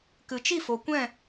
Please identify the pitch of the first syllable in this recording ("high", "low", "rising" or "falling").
low